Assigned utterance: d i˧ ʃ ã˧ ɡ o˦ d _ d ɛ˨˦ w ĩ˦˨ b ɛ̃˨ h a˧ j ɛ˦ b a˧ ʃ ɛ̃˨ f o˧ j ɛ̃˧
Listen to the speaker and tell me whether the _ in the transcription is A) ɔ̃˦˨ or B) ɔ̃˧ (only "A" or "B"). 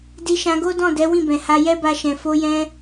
A